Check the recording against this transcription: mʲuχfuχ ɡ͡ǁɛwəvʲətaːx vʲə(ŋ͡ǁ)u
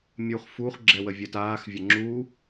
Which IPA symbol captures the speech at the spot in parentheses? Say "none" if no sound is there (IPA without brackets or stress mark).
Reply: ŋ͡ǁ